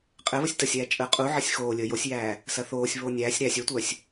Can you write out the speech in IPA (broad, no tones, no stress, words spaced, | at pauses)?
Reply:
qʼɘβəsʲ təsʲæːt͡ʃʼəː qʼuʕɘsʲ xoːlʲəː josʲjæː | sɐθoːsʲβoː nʲæːsʲ ɾæsʲ œtʷœsʲ